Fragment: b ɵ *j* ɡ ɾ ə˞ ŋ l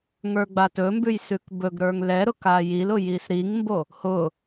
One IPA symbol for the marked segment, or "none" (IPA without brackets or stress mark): none